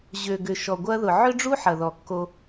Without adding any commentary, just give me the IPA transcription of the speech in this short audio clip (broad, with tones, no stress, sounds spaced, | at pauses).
ʑ ø˨ ɡ ʏ˨ ʃ ɔ˨ ɡʷ ɐ˦ ð ʊ˨ ʕ ʏ˦ ɖ͡ʐ u˦ ħ ɐ˨ ð ɔ˨ kː o˦